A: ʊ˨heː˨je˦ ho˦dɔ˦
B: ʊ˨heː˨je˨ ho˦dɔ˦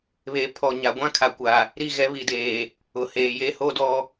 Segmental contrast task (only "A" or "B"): A